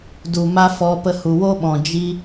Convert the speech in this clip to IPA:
du˨ ma˦fɔ˧ pə˧hu˨wo˦ɓɔ̃˨ d͡ʒi˦

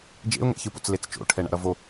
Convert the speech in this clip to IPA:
d͡ʒḛʊ̯ŋɛ̰çɯpo̰t͡s let͡st͡ʃo̰ʈʰɛ ɳa̰ɾʌvo

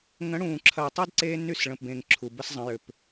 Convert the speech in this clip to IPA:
ŋə̃˨˦ɽũː˨ǁʰɐ˨jtˤy˦d ǀe˦ ny˦˨sɭə̃˨pbẽ˨ŋ ǁʰu˨bə˦szˤə̃˨˦ jʏ˨p

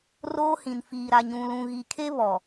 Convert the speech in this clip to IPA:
roː˦hĩ˨nfiː˨ ɾa˨ɲũ˨lũ˨ ɣi˨kʰe˦ βɔ˨

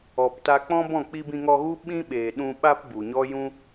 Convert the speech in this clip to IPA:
ɔ˨pta˧ k͡pɔ̃˦bɔ̃˦˨ k͡pi˧bĩ˧ŋɔ˧ɣu˦ ɓĩ˦ɓeː˨ɗũ˧ɓa˦p bu˨ɲɔ˦ jũ˦

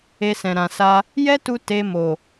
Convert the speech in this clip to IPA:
e˧sɛ̃˨ ɾã˨sa˧ | jɛ˦tu˧ te˧ mo˨

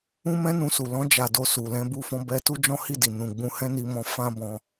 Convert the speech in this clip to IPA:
ũ˦mɛ̃˦nũ˧su˨ lɔ̃˧d͡ʒa˨ do˧su˨lɛ̃˧ bu˧fɔ̃˧bɛ˧ tu˦d͡ʒɔ̃˦hi˦˨di˨ nũ˨ ɡ͡bũ˧ hɛ̃˦ni˧mɔ̃˧ fã˧ bɔ̃˧

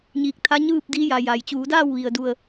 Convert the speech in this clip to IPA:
ɲiː˧k̚ t̪ʰa˧˥ɲɯː˥˨p̚ diː˧˥ja˩ ja˩j t͡ɕuː˩˧daː˥˨wʋi˩ə̯du˧˩ə̯

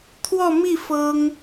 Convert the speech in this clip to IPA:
t̪ʰwɔ˥˧mi˥˩ fɤ˥ŋ

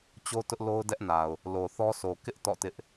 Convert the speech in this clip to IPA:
t͡ɕo˦ tʊ˦ʔlo˦ʊ̯dɛ˦ʔna˨ʊ̯ | lo˨θɔ˦sʰo˨ kɪ˦ʔ tɔ̰˦˨tɪ˦ʔ

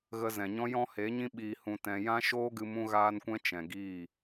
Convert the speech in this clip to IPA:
ɣə˧zɛ̃˨ɲɔ̃˦ jɔ̃˦he˨˦ɲĩ˦ ɓiː˧ hũ˧tɛ̃˧ jã˦ʃoː˦ɡɨ˧ mũ˦ɣaː˦nkʷɛ̃˦ t͡ʃɛ̃˨ɡiː˦˨

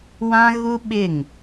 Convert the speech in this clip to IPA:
wã˦ɣu˦ɓɪ˦˨ŋ

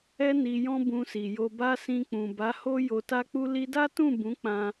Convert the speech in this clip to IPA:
ɛ˦ ni˧jɔ̃˦ bũ˧si˨jo˧ba˦ sĩ˧k͡pũ˨ ba˨˦ho˦ jo˧ta˦k͡pu˦ li˧da˦tũ˦˨ bũ˨˦ k͡pã˧

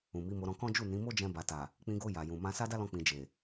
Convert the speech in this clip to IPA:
ũ˨mi˨˦mo˧ ɾɔ̃˧kɔ̃˦ d͡ʒu˦˨nĩ˨˦mo˦ d͡ʒɛ̃˧ba˨ta˨ | k͡pĩ˧ɡo˧ ja˨jũ˨ mã˧sa˦da˦lɔ̃˧ k͡pĩ˧d͡ʒe˨

